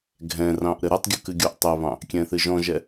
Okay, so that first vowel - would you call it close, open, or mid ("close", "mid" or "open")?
mid